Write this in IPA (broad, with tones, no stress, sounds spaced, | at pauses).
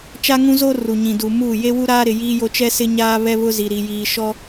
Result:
t͡ʃ a˦ ŋ ũ˦ z o˦ r u˨ ɲ ĩ˨ d uː˨ m uː˦˨ j e˦ w u˦ ɾ aː˦ ɾ ɪ˨ j iː˦ j o˦ t͡ʃ ɛ˦ s ɪ˦ ɲ aː˦ β ɛ˦ β ʊ˦ z i˨ ɾ i˨ j iː˨ ʃ ɔ˦